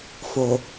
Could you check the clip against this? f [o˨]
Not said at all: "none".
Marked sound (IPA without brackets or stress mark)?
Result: o˨